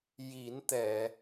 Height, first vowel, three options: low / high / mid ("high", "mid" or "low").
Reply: high